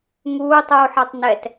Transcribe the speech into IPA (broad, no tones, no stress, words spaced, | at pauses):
ŋuːtˤuːħɑtˤ nɛt